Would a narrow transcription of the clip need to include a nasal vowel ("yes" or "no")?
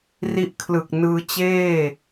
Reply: no